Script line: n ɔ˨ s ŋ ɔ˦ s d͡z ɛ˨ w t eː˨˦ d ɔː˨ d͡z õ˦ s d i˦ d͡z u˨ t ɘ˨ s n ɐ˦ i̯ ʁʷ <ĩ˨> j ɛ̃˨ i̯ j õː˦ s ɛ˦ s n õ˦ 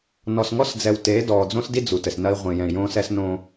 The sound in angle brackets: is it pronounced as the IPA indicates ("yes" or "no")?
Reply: yes